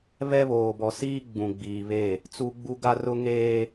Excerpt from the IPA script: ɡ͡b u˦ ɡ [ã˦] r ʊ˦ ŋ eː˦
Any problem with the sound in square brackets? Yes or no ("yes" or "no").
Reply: yes